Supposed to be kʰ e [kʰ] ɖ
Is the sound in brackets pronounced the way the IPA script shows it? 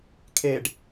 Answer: no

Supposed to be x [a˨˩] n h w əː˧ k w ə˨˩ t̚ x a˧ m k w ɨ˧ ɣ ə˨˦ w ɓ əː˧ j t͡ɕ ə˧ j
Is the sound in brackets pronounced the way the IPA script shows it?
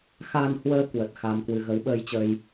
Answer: no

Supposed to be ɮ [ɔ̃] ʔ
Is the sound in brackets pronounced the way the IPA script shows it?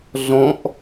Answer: yes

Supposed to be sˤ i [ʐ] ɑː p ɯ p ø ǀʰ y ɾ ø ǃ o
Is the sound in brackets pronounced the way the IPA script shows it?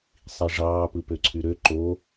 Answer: yes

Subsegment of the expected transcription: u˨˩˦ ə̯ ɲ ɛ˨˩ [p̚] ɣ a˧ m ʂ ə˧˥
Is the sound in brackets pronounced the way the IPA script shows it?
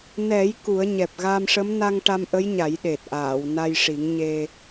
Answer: yes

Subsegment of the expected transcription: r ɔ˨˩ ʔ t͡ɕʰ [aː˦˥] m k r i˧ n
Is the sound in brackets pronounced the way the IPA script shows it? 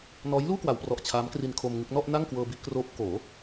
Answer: yes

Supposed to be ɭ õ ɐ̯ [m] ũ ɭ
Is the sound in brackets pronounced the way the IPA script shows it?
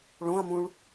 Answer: yes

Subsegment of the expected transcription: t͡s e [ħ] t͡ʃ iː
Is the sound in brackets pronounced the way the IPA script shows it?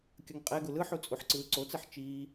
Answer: yes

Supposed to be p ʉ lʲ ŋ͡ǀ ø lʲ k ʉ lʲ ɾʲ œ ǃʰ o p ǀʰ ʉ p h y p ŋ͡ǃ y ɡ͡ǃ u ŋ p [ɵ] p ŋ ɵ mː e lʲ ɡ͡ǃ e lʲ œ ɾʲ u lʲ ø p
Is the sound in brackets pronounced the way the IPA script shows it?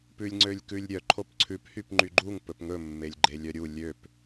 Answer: yes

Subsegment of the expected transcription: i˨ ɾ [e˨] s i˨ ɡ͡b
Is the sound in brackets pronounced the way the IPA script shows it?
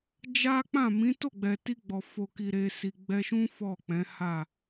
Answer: yes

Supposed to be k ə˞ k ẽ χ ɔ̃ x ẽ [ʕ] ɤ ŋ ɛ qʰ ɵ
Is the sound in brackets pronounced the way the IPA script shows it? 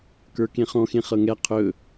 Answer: no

